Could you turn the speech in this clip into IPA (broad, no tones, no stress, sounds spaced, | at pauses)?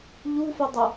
ʎ u f ə dˤ ə